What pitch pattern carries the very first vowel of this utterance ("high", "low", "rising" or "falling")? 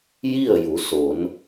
falling